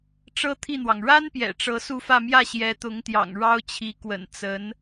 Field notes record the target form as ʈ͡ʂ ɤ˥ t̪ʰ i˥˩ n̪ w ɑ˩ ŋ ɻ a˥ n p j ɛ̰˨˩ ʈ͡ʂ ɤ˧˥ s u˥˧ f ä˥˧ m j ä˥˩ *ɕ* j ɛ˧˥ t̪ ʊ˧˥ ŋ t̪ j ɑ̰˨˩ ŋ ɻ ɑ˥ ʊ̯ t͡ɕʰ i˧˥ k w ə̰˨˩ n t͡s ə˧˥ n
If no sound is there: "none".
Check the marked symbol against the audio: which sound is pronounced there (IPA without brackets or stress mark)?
ɕ